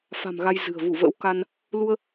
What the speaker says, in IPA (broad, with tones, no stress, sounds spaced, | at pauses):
f a̤˨˩ m ɣ a˧ j z ɨ̤˨˩ ə̯ v u˧˩ v ə̰ː˧˥ w k a˧ n | l u˧ ə̯